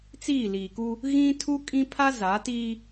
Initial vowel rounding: unrounded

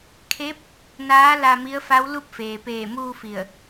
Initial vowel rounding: unrounded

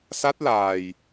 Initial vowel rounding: unrounded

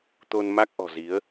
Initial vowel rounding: rounded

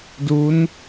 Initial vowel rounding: rounded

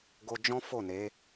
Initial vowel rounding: rounded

